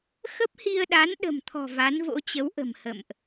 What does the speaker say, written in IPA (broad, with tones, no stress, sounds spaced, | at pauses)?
x ə˦˥ p̚ h i˧ ə̯ ɗ a˨˦ n ɗ ə̤˨˩ m t̪ʰ ɔ̤˨˩ v a˨˦ n v o̰˧˥ t͡ɕ ə˨˦ w ʔ ə̤˨˩ m h ə̰˧˨ m ʔ